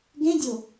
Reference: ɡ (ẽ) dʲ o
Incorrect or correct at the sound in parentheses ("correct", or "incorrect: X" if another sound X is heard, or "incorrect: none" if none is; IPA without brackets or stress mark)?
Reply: correct